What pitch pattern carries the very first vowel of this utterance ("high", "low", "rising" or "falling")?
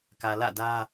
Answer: low